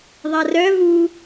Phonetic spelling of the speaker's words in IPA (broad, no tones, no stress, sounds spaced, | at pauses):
ðˤ a r œ v u